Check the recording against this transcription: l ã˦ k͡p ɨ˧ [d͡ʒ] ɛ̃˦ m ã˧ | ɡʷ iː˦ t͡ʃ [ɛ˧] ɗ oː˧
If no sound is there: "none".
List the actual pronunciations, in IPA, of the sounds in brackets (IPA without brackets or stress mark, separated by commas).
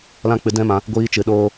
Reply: d, ɨ˧